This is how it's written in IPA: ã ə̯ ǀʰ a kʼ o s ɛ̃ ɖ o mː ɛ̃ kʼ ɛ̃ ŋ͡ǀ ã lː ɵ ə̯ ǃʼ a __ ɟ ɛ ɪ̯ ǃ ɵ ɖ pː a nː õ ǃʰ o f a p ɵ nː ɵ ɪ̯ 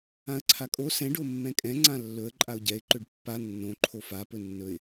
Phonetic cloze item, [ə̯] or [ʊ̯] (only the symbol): ʊ̯